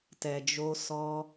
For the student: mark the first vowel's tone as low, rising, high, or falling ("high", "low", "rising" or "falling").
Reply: low